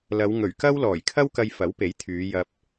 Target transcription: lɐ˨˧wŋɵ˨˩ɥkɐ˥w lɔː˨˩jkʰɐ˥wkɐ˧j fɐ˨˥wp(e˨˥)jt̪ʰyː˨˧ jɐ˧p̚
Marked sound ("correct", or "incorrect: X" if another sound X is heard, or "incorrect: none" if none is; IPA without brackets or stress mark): correct